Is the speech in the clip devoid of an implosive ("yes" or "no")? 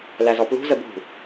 yes